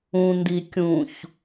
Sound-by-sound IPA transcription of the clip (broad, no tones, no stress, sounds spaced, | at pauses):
ũ n d i kʲ ũ ç